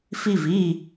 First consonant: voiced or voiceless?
voiceless